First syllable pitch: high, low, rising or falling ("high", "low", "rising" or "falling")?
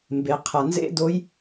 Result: low